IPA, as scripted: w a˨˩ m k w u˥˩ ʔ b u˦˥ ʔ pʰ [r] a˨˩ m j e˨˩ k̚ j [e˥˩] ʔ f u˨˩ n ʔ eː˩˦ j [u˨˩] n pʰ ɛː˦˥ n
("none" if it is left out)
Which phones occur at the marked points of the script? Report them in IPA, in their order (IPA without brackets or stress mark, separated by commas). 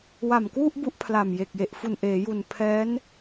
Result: l, e˨˩, u˨˩